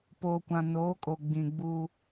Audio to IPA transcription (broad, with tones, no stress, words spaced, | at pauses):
po˨kʷã˨noː˨˦kʼo˨ ɡ͡bĩ˨ ɡ͡buː˦